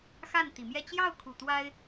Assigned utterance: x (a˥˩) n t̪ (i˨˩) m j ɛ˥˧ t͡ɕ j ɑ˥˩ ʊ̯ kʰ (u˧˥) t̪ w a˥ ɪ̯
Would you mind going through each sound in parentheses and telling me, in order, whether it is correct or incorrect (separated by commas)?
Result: correct, correct, incorrect